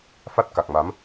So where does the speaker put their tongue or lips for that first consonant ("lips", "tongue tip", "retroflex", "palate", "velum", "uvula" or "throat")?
lips